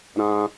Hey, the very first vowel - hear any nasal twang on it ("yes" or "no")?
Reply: yes